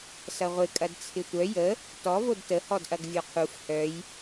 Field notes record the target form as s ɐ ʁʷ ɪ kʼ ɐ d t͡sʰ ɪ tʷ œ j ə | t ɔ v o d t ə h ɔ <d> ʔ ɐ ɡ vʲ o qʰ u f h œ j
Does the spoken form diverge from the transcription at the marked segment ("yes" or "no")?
no